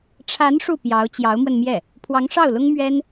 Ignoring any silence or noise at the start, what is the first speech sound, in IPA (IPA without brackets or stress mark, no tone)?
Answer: ʈ͡ʂʰ